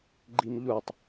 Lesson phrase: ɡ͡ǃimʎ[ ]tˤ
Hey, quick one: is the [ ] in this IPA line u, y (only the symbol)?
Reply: u